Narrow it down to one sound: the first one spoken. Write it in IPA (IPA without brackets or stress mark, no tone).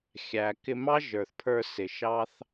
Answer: xʲ